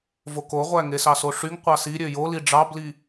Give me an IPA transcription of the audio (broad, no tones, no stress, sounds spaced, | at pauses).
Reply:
v o k o ʁʷ æ ŋ e s ɑ s o ʂ y ŋ qʷ ɑ s i ɾʲ ø j o l i ɖ͡ʐ ɑ b l i